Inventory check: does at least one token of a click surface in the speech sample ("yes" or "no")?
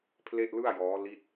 no